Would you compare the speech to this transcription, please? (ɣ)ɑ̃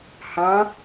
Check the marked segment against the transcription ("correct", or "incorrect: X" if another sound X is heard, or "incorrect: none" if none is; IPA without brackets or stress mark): incorrect: h